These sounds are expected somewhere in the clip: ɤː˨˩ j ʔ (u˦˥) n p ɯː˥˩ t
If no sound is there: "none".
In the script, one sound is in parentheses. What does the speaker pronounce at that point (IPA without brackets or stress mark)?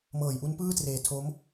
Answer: u˦˥